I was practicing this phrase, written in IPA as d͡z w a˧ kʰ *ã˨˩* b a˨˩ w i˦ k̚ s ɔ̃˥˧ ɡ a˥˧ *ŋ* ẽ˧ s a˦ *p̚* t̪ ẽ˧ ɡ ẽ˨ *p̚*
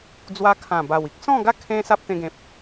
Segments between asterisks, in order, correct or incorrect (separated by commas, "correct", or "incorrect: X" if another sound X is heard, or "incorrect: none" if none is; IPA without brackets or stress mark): correct, incorrect: kʰ, correct, correct